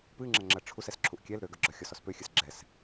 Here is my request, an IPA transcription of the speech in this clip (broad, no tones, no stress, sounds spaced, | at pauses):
p ɨ ŋ͡ǁ ɐ ŋ͡ǁ ɐ ʈ͡ʂʰ u s ɛ s ǁʰ u ʔ kʲ ɛ l ɾ ø ɡ œ ɡ͡ǁ ɔ xʲ ɔ s ɔ s p ø xʲ ɨ s ɡ͡ǁ ɛ s